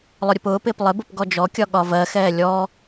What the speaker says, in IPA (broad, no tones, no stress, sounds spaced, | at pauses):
lˠ ʊ ɾʲ ʊ p ʊː p ɪː p lˠ ɪ b ʊ p ɡ ɔ d͡ʒ ɔ kʲ ɒ ɠ ɒ v ɜ x ɛː lʲ ɔ